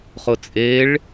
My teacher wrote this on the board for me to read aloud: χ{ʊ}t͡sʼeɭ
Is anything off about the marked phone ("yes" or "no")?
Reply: no